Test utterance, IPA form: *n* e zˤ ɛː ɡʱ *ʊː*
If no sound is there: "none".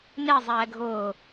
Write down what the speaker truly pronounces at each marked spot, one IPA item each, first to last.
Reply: n, ʊː

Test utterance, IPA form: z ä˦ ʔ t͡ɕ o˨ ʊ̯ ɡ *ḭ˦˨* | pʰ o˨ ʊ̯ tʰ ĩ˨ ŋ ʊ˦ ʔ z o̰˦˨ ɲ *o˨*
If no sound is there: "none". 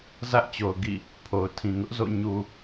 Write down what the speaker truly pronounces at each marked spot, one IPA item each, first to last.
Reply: ḭ˦˨, u˨

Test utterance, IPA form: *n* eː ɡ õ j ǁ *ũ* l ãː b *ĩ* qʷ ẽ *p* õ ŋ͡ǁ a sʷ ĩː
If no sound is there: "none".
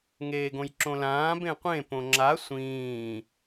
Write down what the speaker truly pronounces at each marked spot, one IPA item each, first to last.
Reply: ŋ, õ, ẽ, p

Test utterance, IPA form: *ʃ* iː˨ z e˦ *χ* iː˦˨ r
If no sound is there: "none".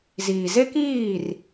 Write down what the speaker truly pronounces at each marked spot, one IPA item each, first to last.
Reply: z, k

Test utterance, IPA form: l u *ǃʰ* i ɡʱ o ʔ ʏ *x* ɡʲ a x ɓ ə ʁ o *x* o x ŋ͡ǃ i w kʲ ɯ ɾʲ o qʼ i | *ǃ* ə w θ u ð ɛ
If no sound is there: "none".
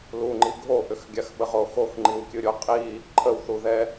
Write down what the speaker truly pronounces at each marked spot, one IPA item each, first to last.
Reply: ŋ͡ǃ, x, x, ǃʰ

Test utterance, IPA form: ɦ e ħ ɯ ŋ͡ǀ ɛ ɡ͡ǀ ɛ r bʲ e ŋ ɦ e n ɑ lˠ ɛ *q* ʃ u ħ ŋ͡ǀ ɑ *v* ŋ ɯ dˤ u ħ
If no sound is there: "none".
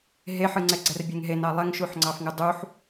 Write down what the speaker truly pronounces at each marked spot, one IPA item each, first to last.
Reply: ŋ, f

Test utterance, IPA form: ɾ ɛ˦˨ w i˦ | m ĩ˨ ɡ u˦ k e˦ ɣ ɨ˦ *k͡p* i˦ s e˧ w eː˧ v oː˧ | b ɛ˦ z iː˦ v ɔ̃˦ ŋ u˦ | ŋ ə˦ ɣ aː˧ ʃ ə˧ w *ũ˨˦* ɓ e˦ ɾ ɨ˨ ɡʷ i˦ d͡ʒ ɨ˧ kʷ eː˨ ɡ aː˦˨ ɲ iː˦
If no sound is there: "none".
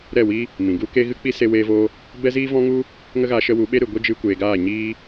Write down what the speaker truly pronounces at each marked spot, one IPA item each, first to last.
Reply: k͡p, u˨˦

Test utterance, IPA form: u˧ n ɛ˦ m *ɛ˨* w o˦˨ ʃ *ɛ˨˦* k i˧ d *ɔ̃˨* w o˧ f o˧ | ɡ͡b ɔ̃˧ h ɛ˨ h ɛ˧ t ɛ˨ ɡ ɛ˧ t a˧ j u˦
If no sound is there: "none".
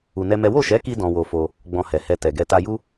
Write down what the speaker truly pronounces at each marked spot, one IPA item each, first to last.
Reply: ɛ˦, ɛ˨˦, ɔ̃˧

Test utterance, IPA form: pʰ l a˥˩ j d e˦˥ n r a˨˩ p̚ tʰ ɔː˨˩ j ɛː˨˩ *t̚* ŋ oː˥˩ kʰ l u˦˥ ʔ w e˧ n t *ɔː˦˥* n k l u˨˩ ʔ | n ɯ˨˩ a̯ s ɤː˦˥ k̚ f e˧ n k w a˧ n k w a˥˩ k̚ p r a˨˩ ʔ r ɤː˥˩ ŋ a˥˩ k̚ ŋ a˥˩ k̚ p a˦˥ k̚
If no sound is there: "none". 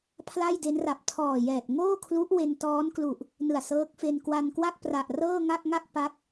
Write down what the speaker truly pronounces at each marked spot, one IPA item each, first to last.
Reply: t̚, ɔː˦˥

